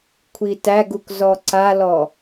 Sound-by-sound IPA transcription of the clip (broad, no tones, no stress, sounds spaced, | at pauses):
kʷʰ i t æ ɡ u k z ɔ ǀ a l ɔ